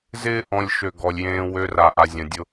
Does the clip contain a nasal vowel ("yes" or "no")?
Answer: yes